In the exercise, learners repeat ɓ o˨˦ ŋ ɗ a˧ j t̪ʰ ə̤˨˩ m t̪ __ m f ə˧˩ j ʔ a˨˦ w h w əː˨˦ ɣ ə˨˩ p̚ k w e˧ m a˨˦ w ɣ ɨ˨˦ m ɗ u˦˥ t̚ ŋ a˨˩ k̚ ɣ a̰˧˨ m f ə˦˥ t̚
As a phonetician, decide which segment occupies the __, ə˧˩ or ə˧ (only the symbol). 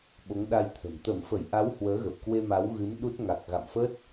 ə˧˩